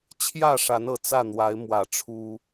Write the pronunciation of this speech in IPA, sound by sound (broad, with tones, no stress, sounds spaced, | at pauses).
t͡ɕʰ j ä˥˨ ʂ a˨˦ n ɤ˨˩ t͡s ä˥˨ n̪ w a˨˦ ɪ̯ m w ä˨˩ ʈ͡ʂʰ u˦